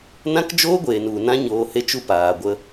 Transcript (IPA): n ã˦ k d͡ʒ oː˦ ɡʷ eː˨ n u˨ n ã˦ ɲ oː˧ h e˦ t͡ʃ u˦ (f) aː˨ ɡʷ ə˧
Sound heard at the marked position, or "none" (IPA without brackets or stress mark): p